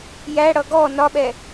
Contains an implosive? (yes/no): yes